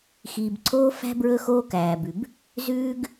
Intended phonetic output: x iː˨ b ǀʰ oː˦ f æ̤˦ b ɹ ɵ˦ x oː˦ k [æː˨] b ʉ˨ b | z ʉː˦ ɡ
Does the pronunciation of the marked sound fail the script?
no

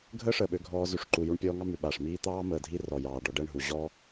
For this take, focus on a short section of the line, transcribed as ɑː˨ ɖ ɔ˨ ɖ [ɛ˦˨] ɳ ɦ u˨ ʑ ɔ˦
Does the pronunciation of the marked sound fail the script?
no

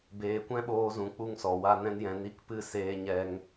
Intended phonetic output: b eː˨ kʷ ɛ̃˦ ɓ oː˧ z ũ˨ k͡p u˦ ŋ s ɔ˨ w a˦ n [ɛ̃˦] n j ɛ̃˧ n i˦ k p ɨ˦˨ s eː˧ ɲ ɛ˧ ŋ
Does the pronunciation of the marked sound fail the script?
no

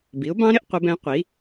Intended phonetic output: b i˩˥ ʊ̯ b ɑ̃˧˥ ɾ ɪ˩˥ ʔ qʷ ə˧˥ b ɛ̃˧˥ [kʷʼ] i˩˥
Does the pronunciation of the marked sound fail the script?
yes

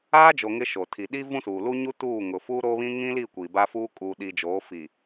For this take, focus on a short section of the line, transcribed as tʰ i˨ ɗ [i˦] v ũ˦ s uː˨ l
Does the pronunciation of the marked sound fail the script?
no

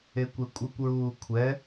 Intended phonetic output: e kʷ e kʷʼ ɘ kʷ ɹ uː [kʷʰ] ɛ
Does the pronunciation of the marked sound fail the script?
no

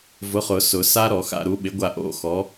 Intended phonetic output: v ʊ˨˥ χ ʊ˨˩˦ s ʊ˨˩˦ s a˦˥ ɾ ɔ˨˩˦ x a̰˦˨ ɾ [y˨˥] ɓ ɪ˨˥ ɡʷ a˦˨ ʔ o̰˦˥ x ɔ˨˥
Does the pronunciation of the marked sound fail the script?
yes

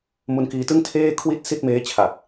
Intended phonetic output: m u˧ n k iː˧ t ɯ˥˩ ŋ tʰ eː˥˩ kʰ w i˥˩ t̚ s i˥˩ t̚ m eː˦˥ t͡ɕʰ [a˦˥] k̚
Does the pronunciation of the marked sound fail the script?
yes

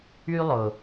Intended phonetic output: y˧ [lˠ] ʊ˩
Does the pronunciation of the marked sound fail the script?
no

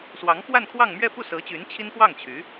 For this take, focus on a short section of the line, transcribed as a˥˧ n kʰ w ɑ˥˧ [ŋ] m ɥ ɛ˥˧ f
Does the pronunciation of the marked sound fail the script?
no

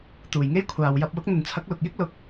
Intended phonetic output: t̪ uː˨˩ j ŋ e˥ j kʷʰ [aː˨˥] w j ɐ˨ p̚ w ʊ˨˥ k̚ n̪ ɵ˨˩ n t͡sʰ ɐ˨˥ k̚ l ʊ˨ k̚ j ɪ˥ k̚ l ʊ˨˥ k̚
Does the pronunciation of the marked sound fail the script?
yes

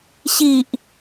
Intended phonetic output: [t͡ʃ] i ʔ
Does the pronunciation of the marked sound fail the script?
yes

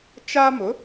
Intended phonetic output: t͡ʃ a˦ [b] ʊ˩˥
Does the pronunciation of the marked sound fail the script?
yes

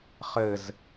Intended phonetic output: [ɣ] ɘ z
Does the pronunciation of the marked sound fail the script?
yes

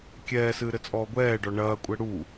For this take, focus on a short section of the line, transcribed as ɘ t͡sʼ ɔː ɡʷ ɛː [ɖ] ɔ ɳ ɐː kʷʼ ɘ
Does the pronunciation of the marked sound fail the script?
no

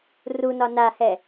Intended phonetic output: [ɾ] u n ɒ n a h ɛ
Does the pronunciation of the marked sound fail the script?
yes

